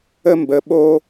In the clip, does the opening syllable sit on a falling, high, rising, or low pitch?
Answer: high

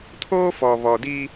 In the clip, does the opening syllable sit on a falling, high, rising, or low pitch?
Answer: high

